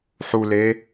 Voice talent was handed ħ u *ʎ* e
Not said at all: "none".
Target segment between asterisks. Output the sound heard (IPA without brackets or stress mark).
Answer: l